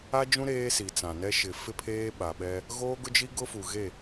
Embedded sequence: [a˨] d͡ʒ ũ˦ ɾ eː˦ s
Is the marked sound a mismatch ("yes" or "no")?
yes